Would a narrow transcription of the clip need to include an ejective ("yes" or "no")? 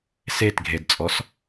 yes